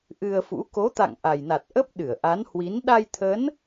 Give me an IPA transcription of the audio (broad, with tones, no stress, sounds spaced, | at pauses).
ʔ ɨ˧ ə̯ f ṵ˧˥ k o˨˦ t̪ a̰˧˨ ŋ ʔ a˨˩ j n a˨˩ t̚ ʔ ə˦˥ p̚ ɗ ɨ˧˩ ə̯ ʔ a˨˦ n h w i˨˦ n ɗ a˧ j t̪ʰ ə˨˦ n